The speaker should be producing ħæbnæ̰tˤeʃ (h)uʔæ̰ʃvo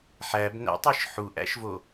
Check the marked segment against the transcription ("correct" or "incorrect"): incorrect